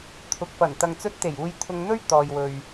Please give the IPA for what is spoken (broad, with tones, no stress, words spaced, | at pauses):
t̪ʰʊ˨k̚fɐ˨˩n t̪ɐ˨ŋt͡sɵ˧t̚t̪e˨˩j uː˧jt̪ʰʊ˧ŋn̪ɵ˥ɥ t̪ɔː˨jwɵ˨ɥ